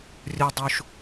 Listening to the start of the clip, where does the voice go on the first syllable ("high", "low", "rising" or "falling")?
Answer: low